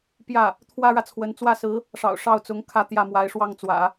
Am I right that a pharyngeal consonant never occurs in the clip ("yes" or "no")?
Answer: yes